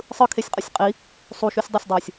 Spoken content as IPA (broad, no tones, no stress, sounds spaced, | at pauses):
sˤ ɯ kʰ e sʲ qʼ ʌ sʲ qʼ i | sˤ u ʃ u sʲ dˤ e sʲ dˤ oː sʲ